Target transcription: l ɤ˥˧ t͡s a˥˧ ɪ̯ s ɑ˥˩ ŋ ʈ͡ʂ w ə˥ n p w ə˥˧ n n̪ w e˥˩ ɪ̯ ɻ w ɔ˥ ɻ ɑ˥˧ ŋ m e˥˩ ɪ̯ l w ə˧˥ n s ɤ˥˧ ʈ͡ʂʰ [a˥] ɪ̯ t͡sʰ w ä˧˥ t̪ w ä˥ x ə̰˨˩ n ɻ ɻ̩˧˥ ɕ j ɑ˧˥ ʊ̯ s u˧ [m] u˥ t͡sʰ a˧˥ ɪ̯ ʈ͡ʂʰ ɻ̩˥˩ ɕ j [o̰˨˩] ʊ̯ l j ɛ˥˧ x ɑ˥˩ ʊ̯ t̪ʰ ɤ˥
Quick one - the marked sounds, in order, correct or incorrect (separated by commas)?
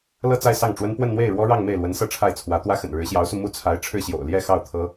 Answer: incorrect, correct, correct